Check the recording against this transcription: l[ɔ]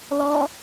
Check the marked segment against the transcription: correct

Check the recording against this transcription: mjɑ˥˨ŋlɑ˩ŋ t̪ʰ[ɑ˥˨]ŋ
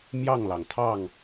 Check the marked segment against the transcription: correct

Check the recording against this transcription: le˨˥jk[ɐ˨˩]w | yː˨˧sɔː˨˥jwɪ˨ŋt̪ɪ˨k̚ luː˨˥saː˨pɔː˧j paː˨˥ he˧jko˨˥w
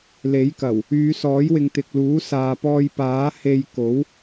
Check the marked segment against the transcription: correct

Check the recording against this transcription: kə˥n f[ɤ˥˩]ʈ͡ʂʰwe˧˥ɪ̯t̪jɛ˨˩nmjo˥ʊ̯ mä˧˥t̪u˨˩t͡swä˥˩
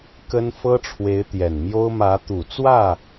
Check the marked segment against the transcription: incorrect: ɤ˥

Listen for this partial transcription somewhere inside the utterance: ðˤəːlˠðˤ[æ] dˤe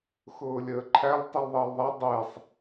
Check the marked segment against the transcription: incorrect: a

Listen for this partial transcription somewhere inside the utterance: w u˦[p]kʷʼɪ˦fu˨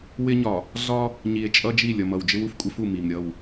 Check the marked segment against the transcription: incorrect: f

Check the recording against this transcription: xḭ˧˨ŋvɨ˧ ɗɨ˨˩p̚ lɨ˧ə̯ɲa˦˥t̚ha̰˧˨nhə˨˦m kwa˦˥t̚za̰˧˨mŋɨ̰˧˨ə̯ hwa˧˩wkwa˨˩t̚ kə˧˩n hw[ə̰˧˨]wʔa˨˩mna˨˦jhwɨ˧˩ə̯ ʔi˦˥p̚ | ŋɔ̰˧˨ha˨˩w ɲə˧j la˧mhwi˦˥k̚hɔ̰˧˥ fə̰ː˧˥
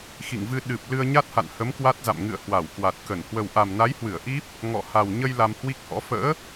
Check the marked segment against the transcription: incorrect: ə˨˩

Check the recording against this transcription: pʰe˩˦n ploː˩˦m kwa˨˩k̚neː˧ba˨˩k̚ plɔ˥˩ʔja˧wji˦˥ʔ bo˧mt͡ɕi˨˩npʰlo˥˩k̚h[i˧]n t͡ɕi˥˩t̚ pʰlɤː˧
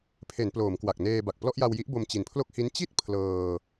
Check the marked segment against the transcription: incorrect: i˦˥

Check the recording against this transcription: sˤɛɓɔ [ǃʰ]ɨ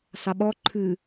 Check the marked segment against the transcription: correct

